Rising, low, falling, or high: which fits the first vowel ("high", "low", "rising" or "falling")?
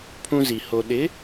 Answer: high